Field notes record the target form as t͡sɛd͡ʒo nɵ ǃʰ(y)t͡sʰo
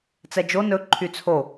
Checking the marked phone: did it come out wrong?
no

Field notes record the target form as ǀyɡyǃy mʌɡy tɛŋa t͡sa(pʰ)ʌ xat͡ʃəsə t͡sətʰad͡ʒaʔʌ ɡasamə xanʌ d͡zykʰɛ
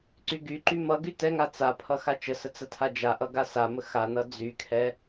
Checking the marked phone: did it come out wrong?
no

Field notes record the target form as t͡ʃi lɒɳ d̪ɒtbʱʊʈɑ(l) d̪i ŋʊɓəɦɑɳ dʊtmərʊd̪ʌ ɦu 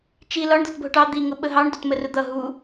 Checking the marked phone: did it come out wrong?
yes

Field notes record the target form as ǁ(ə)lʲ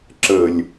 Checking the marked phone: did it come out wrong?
no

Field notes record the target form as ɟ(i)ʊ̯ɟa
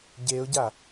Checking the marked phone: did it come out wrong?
yes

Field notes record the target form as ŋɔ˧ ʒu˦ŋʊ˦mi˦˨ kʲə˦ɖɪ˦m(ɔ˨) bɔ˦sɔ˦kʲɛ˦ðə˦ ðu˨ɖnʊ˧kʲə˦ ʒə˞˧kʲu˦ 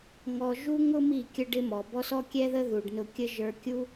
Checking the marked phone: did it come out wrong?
no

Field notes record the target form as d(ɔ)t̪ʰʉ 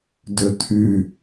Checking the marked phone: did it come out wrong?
yes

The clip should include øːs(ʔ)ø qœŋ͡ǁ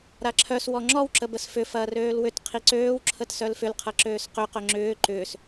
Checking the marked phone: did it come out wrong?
yes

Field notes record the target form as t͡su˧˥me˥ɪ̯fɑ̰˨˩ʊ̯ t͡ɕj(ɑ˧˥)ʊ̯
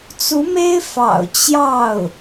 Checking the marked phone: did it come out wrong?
yes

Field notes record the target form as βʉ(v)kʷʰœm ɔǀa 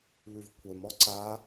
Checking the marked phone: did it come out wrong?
no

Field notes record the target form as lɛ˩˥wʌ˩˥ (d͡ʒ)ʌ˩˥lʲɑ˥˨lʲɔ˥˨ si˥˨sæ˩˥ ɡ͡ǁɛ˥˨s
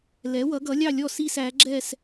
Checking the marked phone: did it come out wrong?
yes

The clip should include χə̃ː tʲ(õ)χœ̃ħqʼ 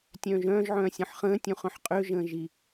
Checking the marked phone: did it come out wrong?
yes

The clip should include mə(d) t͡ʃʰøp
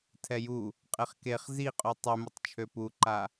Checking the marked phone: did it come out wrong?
yes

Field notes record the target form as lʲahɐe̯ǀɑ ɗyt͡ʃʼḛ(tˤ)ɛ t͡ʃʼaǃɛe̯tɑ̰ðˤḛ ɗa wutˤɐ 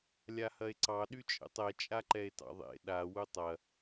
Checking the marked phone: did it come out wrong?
no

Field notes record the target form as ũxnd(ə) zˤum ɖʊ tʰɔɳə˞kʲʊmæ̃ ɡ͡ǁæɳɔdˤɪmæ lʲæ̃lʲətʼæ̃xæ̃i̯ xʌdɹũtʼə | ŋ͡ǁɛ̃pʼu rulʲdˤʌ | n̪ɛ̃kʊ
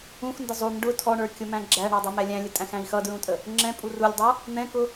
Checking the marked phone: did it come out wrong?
no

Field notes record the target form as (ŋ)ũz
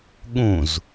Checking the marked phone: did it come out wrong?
yes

